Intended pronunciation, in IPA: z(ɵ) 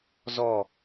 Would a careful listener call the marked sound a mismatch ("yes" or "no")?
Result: yes